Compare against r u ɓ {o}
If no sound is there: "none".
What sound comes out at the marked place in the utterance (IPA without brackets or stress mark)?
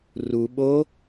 o